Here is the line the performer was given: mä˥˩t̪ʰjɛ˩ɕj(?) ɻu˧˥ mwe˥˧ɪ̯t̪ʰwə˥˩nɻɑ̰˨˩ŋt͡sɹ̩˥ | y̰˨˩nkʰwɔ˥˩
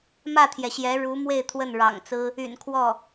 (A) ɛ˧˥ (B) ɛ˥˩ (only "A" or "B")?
A